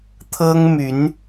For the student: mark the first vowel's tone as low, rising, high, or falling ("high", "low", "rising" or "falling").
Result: high